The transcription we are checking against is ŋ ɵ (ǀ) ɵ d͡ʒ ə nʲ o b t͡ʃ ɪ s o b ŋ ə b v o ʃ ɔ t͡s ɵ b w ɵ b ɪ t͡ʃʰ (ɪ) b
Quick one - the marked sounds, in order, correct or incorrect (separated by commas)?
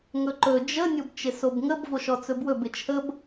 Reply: incorrect, incorrect